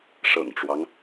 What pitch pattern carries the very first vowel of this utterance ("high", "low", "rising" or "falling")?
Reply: low